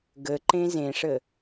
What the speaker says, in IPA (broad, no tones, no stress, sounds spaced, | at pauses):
ɡ ə ǃ ẽ z ẽ ʂ ə